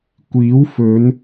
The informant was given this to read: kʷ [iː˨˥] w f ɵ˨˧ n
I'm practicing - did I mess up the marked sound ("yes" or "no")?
no